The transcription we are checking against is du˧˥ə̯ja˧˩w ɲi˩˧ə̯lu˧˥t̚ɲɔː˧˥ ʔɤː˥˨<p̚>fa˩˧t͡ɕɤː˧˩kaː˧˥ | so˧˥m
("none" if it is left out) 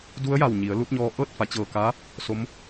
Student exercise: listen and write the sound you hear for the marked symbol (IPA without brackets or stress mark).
t̚